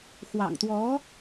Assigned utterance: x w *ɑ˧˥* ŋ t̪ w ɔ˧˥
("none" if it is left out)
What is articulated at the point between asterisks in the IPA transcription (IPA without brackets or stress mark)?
ɑ̰˨˩